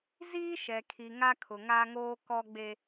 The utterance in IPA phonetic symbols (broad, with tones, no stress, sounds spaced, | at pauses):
z iː˦ ʃ ɛ˨ kʰ i˨ ŋ a˦ kʰ ʊ˨ ŋ a˦ ŋ oː˦ k ɔ˦ ɡ͡b e˦